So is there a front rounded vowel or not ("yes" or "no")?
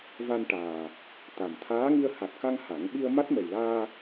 no